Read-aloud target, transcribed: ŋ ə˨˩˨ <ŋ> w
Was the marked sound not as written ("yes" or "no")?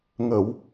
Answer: yes